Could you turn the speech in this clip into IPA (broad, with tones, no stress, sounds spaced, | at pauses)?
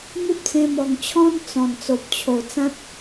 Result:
m u˦ p̚ t͡s ẽ˧ m ɔ˨˩ ŋ t͡ɕʰ ɔ̃˦ n t͡s ɔ̃˨˩ n t͡s o˨ p̚ t͡ɕʰ o˨˩ t͡s ã˦ t̚